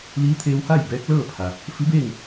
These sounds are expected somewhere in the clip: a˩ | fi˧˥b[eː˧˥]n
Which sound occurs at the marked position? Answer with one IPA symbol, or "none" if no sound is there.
eː˥˨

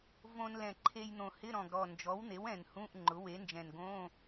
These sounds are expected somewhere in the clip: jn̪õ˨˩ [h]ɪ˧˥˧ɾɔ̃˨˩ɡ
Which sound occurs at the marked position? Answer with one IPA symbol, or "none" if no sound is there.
h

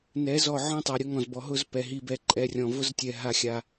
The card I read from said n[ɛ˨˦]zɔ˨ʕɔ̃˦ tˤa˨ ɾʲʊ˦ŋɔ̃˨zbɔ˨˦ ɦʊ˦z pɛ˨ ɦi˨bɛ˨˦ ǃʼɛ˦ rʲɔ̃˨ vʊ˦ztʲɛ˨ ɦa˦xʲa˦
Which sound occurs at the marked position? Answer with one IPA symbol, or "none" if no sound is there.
ɛ˨˦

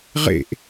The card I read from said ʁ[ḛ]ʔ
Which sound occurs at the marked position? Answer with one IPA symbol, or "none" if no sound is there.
ḛ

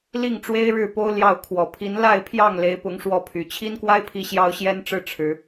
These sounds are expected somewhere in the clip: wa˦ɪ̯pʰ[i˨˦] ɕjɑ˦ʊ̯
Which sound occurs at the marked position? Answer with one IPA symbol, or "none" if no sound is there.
i˨˦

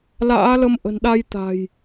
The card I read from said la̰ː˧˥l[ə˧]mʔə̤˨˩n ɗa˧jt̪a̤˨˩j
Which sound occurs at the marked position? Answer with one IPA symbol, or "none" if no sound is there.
ə˧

